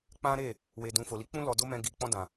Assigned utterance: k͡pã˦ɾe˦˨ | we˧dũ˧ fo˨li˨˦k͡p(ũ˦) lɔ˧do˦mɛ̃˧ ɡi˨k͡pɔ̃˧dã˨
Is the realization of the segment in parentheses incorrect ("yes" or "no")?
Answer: no